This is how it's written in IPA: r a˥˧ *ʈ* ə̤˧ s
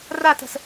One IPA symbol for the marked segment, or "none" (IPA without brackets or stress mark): t